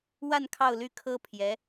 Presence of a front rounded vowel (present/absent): present